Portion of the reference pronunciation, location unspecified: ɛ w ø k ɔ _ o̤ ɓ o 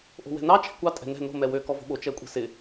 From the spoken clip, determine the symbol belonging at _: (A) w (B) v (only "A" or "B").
B